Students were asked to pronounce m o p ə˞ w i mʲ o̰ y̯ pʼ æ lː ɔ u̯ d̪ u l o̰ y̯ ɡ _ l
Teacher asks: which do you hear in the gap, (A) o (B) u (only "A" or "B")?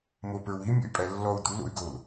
A